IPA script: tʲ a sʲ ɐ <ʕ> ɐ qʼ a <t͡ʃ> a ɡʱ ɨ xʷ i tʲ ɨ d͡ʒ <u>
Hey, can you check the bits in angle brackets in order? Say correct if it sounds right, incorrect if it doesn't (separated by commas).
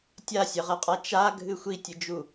incorrect, correct, correct